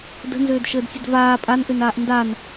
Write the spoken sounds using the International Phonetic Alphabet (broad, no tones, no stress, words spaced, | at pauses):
də̤nzøːdʃəːdsʲəd vaː pʼanʔønaːʔ ndan